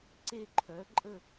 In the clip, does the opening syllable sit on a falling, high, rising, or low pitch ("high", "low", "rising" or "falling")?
falling